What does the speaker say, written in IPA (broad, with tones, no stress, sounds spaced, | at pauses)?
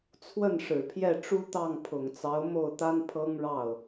t͡sʰ w ə˥˩ n ʂ ɻ̩˨˩ pʰ j ɛ˥˩ ʈ͡ʂ u˥ t̪ ɑ˥˩ ŋ pʰ ʊ˨˩ ŋ t͡s ɑ˧˥ ʊ̯ m o˥˩ ʊ̯ t̪ a˥ n pʰ ɤ˥ ŋ ɻ ɑ˥˩ ʊ̯